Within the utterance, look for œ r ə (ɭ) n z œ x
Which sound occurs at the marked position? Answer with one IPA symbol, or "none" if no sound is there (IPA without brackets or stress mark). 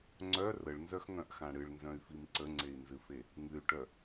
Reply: ɭ